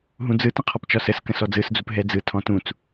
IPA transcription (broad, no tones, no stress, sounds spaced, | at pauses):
ɦ ũ d͡z ɯ t ə̃ qʰ ɔ p t͡ʃ ɒ s ə s k ə̃ s ɔ d͡z ɯ s d͡z u p ɦ ɛ d͡z ɯ tʰ ɔ̃ t ũ t͡s